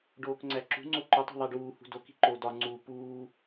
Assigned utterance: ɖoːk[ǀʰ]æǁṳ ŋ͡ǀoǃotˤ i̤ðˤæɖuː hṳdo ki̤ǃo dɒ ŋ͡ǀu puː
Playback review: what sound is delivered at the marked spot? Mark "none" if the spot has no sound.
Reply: ŋ͡ǀ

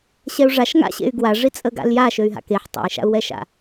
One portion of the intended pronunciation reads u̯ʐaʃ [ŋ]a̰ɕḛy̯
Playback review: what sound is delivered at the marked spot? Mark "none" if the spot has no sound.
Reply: ŋ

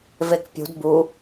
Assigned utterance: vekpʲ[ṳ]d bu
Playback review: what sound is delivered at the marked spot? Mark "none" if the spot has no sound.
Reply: ṳ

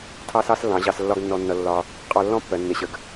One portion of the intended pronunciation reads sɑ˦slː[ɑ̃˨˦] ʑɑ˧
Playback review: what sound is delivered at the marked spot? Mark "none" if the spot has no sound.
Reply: ɑ̃˨˦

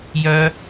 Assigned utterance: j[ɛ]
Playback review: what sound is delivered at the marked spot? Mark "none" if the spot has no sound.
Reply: œ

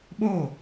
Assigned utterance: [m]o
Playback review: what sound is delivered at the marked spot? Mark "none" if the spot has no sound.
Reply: ɓ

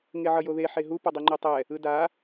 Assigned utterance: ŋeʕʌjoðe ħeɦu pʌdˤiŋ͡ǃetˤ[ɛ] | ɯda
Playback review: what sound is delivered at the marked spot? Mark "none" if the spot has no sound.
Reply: ɛ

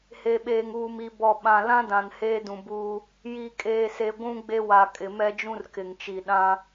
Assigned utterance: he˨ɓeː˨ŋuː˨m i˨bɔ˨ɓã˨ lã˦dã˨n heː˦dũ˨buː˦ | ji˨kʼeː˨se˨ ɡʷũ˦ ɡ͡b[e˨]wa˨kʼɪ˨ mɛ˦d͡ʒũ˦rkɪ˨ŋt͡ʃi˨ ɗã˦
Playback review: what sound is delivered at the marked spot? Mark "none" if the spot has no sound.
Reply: e˦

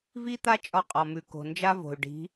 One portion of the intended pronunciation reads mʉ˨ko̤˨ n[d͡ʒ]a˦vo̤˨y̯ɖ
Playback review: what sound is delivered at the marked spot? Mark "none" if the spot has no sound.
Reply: d͡ʒ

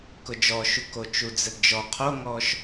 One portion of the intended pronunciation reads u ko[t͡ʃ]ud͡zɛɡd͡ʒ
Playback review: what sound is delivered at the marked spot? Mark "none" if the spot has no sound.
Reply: t͡ʃ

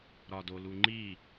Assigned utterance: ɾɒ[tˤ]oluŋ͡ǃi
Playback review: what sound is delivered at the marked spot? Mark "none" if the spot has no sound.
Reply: d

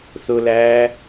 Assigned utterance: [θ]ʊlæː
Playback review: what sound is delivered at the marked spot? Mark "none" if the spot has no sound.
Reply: θ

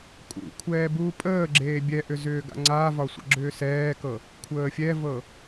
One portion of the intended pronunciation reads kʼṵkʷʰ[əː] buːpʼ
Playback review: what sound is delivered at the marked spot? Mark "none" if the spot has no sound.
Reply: ɛː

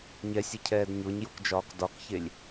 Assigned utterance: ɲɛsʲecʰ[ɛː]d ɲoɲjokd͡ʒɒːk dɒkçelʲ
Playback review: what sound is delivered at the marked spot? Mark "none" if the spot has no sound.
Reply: ɛː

